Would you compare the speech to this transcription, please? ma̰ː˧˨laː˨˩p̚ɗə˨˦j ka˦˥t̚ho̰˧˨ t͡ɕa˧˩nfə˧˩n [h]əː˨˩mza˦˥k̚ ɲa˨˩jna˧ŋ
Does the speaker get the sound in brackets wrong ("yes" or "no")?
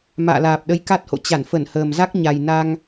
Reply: no